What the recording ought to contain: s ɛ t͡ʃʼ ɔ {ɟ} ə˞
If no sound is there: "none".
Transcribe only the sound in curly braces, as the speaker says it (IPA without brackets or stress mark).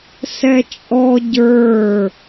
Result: ɟ